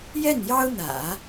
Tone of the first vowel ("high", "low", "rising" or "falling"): falling